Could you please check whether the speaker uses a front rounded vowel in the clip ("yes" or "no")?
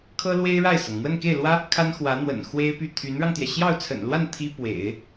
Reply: yes